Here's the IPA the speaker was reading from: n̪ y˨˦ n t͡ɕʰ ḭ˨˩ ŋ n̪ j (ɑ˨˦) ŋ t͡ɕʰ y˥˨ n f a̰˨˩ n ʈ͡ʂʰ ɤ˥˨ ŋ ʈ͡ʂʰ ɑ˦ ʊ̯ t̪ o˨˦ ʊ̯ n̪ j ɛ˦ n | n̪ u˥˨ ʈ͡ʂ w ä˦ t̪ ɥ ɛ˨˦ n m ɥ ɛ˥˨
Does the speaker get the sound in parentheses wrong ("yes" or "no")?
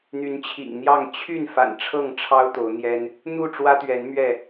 yes